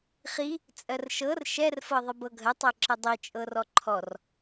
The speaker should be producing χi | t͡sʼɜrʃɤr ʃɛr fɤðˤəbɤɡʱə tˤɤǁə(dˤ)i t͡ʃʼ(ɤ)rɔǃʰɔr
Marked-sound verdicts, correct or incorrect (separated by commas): correct, correct